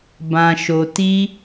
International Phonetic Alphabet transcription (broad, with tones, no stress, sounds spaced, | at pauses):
b ã˨ ʃ o˨ t i˧